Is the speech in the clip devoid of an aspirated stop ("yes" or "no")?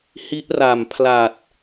no